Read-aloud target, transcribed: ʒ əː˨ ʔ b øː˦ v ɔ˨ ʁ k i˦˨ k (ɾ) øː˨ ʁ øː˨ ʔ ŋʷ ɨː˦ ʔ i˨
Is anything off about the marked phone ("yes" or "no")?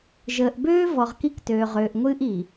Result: yes